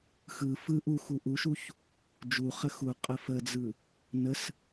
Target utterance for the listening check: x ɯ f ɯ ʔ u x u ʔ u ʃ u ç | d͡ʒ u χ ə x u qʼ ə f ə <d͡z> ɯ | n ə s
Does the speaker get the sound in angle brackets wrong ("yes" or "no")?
no